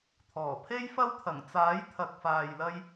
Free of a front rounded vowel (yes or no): yes